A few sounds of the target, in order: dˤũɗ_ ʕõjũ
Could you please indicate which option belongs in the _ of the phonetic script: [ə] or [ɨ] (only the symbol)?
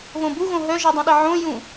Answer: ə